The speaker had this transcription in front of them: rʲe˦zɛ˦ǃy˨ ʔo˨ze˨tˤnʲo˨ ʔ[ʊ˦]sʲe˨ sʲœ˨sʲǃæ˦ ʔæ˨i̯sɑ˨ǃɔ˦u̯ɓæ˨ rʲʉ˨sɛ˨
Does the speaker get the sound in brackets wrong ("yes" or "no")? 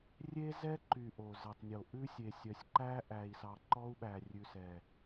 yes